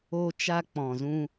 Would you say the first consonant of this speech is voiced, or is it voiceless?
voiceless